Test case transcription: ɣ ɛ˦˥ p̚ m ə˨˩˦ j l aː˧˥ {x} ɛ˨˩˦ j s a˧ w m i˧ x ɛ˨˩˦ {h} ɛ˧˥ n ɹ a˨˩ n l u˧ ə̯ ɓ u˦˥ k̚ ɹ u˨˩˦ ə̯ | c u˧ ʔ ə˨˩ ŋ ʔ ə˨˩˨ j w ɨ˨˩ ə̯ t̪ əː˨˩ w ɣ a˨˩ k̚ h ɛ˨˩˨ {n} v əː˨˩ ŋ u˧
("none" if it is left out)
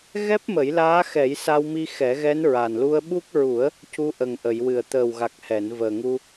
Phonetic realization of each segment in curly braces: x, ɣ, n

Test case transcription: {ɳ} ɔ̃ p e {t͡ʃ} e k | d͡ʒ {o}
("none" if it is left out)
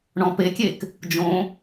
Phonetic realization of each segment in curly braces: ɳ, kʲ, õ

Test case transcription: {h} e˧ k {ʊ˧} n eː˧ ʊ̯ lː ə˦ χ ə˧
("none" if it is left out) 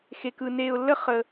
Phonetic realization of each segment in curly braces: x, ɯ˧

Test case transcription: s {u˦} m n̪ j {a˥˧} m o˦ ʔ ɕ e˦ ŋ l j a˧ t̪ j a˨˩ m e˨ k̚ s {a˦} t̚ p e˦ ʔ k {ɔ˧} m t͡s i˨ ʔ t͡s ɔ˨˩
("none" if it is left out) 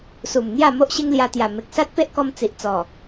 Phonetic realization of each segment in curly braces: u˨˩, a˥˧, a˦, ɔ˧

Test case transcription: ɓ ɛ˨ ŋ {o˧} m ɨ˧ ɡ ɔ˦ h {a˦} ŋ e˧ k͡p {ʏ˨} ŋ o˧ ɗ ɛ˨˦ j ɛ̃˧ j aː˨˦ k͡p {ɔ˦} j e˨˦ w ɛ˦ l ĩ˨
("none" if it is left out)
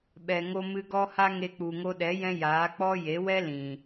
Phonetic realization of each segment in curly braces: o˧, a˦, u˨, ɔ˦

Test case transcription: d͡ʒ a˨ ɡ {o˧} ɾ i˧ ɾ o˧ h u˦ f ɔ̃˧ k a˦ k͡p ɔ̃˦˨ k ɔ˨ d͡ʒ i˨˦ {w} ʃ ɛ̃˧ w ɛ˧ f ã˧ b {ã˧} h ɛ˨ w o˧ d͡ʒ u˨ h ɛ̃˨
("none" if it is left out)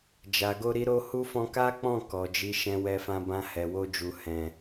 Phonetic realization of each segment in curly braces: o˧, none, ã˧

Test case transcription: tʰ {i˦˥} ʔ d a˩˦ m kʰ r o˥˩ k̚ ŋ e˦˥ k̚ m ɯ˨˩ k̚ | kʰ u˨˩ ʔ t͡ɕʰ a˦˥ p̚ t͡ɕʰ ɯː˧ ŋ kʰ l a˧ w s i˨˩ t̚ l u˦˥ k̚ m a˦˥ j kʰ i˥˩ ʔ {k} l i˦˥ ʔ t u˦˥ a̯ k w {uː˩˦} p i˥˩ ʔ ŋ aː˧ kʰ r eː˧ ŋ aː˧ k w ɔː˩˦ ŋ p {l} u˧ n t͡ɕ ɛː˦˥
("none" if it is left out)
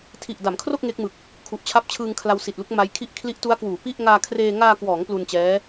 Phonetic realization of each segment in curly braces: i˨˩, kʰ, uː˩˦, l

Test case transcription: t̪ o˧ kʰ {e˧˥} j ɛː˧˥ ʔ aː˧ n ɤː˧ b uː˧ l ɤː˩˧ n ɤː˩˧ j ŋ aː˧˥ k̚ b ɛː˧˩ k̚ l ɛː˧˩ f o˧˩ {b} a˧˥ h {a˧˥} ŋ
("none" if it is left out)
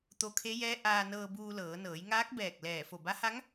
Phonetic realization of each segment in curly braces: e˧˥, b, a˧˥

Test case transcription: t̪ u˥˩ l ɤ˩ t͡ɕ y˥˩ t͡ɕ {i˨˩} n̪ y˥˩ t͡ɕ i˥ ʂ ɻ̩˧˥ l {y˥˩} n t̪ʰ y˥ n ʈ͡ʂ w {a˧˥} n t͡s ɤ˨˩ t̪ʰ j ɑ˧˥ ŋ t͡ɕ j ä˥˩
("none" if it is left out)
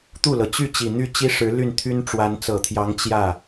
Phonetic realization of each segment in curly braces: i˨˩, y˥˩, a˧˥

